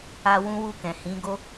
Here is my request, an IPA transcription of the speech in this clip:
a˧ w ũ˦ w u˦˨ k ɛ̃˨ h ĩ˨˦ ɡ o˦

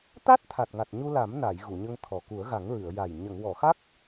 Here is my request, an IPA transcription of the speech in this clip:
t̪ a˦˥ t̚ t̪ʰ a˨˩ t̚ ŋ a˨˩ t̚ ɲ u˧ l a˨˩˦ m n a˨˩˨ j ɣ u˨˩˨ ɲ ə˧ ŋ t̪ʰ ɔ˨˩ k u˨˩˦ ə̯ ɣ a˨˩˦ ŋ ɹ ɨ˨˩˨ ə̯ j a˨˩ j ɲ ə˨˩˨ ŋ w ɔ˨˩˨ x a˦˥ k̚

